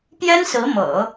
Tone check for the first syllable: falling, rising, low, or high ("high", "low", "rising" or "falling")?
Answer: high